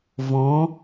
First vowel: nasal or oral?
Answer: nasal